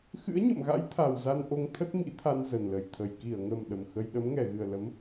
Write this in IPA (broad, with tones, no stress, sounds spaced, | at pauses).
x ɨ̰˧˥ ə̯ ɲ ə̰˧˨ m ɣ a̰˧˥ j t̪ʰ a˨˩ w z a˧ n ʔ o˧ ŋ t̪ʰ ə˦˥ t̚ m ḭ˧˥ t̪ʰ a˧ n z ə˨˩ n l ə˨˩ j t̪ʰ ə˨˩ j k i˧˩ ə̯ ŋ ə˨˩ m ɗ ə˨˩ m x ə˧ j ɗ ə˨˦ m ŋ ɛ˧˩ ɣ ɨ˨˩ ə̯ l ə˨˦ m